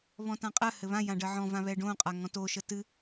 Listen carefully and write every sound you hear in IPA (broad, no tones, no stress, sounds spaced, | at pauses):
β ɔ̃ t ã qʼ ɜ h ɘ β ã j ã ɖ ɜ ʕ ɔ̃ v ã β ɛ ɖ õ qʼ a ŋ ɔ̃ t o ʃ ə t ɨ